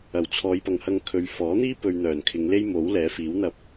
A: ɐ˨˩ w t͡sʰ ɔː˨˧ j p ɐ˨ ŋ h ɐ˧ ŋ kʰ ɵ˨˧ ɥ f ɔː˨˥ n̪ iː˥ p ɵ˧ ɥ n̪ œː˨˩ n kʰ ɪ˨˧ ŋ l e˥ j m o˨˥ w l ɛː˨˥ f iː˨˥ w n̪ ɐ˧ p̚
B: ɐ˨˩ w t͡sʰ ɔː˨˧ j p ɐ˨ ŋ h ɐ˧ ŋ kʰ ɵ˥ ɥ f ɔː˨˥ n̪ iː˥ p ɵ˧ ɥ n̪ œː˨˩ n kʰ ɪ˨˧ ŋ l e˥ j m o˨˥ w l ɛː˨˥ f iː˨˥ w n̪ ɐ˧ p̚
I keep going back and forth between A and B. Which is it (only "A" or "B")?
A